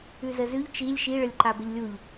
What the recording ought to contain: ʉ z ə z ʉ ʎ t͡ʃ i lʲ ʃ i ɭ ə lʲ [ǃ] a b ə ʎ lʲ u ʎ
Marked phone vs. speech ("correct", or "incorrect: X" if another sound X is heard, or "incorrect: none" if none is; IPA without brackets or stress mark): correct